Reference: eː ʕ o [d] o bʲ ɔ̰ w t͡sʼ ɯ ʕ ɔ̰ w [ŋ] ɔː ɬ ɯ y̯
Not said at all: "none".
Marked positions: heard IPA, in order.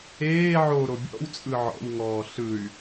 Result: ɾ, ŋ

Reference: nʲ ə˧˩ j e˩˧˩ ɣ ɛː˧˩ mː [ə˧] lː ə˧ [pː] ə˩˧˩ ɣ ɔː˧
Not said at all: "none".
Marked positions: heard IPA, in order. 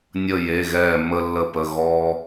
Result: ə˧, p

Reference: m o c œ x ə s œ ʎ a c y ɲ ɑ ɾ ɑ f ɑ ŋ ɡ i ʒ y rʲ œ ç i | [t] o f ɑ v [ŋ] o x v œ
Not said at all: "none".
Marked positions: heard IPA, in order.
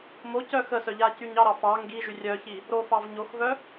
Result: ɾ, ɲ

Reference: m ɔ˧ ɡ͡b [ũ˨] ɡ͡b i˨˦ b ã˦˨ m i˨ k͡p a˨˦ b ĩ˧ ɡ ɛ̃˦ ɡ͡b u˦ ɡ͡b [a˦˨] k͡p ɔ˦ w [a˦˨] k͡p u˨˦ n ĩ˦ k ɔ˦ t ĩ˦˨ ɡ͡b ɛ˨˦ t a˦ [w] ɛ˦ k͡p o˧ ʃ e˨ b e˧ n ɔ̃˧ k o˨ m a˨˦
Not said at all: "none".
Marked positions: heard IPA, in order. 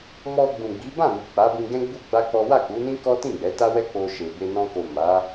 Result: ũ˨, a˦, a˦˨, w

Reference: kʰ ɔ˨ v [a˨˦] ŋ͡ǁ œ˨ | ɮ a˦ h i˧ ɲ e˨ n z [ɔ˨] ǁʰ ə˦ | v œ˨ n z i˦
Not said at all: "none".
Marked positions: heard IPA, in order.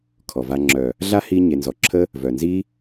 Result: a˧, ɔ˨

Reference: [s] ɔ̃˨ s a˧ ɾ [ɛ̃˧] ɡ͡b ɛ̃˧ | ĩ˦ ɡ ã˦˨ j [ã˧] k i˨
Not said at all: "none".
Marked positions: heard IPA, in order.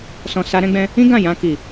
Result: s, ɛ̃˧, ã˧

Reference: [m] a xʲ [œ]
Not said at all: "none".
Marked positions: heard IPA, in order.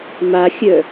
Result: m, œ

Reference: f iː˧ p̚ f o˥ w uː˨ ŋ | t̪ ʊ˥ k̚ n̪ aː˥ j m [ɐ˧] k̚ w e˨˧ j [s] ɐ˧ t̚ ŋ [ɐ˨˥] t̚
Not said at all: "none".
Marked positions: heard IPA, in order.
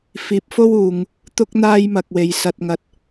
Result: ɐ˧, s, ɐ˧

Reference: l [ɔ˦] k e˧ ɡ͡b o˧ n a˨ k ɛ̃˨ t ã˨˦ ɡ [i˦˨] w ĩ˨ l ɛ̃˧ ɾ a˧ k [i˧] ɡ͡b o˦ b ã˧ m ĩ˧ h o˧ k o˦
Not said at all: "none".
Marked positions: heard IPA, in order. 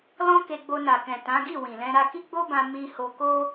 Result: ɔ̃˦, i˦˨, i˦

